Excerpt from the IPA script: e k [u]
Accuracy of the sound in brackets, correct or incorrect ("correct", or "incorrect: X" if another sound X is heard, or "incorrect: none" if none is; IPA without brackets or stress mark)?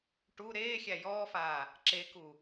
correct